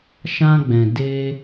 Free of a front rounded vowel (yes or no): yes